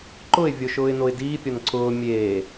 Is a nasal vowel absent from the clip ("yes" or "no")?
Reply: yes